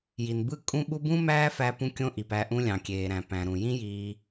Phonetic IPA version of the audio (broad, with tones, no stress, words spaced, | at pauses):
ji˨nbɯ˦ kʼũ˦ɓu˦ bũ˦mæː˦fæ˧ pũ˦kʲõ˦ʔi˨pæ˧ ʔũ˧lʲɑ̃˨kʲeː˨ɾæ̃˨ pæ̃˨ɾũ˨ jĩ˦jiː˧